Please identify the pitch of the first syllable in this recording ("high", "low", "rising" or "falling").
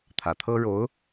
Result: low